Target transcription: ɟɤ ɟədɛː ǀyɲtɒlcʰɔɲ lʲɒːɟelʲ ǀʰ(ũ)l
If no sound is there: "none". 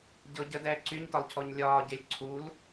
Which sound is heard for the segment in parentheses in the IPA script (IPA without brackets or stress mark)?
u